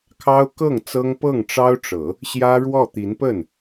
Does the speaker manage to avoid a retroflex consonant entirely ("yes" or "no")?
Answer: no